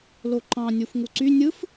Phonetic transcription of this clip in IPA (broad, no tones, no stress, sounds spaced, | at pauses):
l o ǃ ɑ̃ nʲ u f ŋ u ǀ y nʲ ɯ f